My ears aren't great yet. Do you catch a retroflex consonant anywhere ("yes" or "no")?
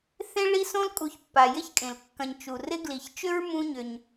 yes